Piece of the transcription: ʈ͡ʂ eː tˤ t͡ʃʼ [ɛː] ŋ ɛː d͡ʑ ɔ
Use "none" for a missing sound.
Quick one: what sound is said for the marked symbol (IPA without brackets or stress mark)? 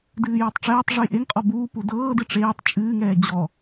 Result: ɨː